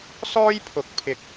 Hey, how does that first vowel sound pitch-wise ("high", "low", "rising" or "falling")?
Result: high